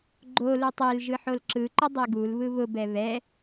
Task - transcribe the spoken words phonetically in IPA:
ɡ͡ǃ o l u tˤ e l ʒ ɯ ħ o l ǁ ɯ ǃ ʊ dˤ e ɡ u l β ɯ β ʊ b ɛ β ɛ

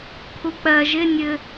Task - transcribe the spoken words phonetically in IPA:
kʰ u k͡p ɜ ʒ ɪ nʲ ɘ

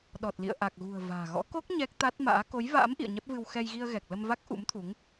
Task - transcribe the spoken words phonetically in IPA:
ɗ ɔ˨˩ t̚ l ḭ˧˨ ə̯ ʔ a˨˩ k̚ ɣ ṳ˨˩ ə̯ v a̤ː˨˩ ɣ ɔ̰˧˥ k o˦˥ k̚ ɲ ɛ˦˥ k̚ t̪ a˦˥ t̚ m a̰ː˧˥ k o˨˦ j v a̰ː˧˥ m ʔ ḭ˧˨ ə̯ ɲ ɛ˦˥ p̚ v ɨ˧ w x ɛ˧ j ɣ i˧ ə̯ ɣ ɛ˨˩ k̚ l ə˧ m v a˦˥ k̚ ʔ ṵ˧˥ m t̪ʰ u˨˦ ŋ

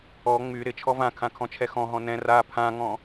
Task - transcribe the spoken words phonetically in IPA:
ɔ ŋ͡m y ɾ ɪ t͡ʃʰ ɔ v ã kʰ ã kʰ ɔ̃ t͡ʃʰ ɛ x ɔ̃ ɦ ɔ̃ n ɛ̃ r a pʰ ã ŋ ɔ̃

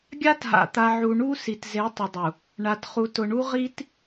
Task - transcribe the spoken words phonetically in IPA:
ɡʲ a˦ t ɦ a̰˨ t̪ a˨ ʕ u˨ ɳ u˦ s i˨ t z e˨˦ tˤ ɪ˨ dˤ u˨ | ɳ a˨ t χ u˨ t ʊ˨ ɳ u˦ ʁ i˦ t

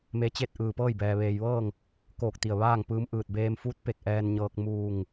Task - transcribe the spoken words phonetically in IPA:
m e˧˥ t͡ɕ e˥˨ t̚ ʔ ɯː˧˩ p ɤː˥˨ j b ɛː˩ ʋ eː˩ j ʋ ɤː˥˨ ŋ | k oː˧˩ k̚ t̪ i˧˩ ə̯ ʋ aː˥˨ ŋ p ɯː˧ m ʔ ɯː˧˩ t̚ b eː˧ m f uː˧˥ t̚ p e˧˩ k̚ ʔ ɛː˧ n ɲ ɤː˧ k̚ m uː˧˩ ŋ

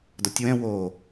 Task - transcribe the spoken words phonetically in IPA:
d ɔ tʲ w ɛ̃ w o

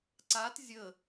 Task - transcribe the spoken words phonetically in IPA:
ǀ a t zʲ ə

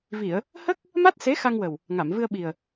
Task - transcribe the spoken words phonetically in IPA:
v i˨˩˨ ə̯ | h ə˦˥ k̚ | m a˦˥ t̚ s e˧˥ x a˧ ŋ w ə˨˩ w | ŋ a˨˩˨ m v ɨ˧ ə̯ ɓ i˨˩ ə̯

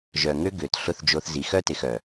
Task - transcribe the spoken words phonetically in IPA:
ʒ œ˨ ŋ ø˦ ɡ ø˨ t ɬ ʊ˦˨ θ d͡ʒ o˧ θ z i˨˦ x œ˦ t ɪ˨ x œ˨

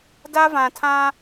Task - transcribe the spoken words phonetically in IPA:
d a˦ v ã˨ tʰ ã˦

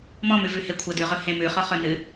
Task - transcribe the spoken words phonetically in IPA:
m ɔ̃ m ʉ v ʉ h e kʷʰ ə d ʉ ʁ ɵ h ẽ m ʉ χ ɔ χ ɵ n ɨ

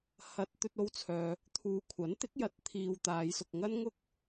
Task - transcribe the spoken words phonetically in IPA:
h ɐ˧ t̚ t̪ ɵ˧ t̚ o˧ w t͡sʰ œː˨ | t̪ʰ uː˨ kʷʰ ɐ˨˥ n t̪ ɪ˨˥ k̚ j ɐ˨˥ t̚ t̪ʰ iː˧ w t̪ aː˨˧ j s ʊ˧ k̚ ŋ ɐ˥ n ŋ ʊ˥ k̚

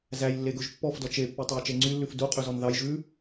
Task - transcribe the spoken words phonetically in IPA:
z æ j lː e ɡ ɵ ʒ pː ɔ f d ɔ t͡ʃ e pː y tˤ o j t͡ʃ e ŋ͡ǀ y lː ʉ f d u qʼ y z ɔ n ð ɑ j ʒ ʉ

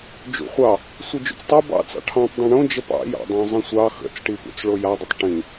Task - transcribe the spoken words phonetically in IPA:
d͡ʒ ṵ χʷ ɑ | sʷ ɯ d͡ʒ ṵ t͡s tˤ o b ɑ̰ t͡s ɑ̰ ʈʰ ɑ̃ tˤ dˤ õ ɳ õ d͡ʒ ə p ɑ̰ j ɑ̰ dˤ ɑ̃ zˤ ə̃ sʷ ɑ x ə̰ t͡s ʈ i p ṵ t͡s ɭ o j a dˤ ə tˤ ʈ ĩ

